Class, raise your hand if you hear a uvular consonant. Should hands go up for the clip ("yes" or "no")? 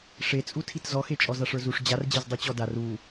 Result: no